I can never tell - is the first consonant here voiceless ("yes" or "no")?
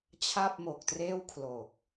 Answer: yes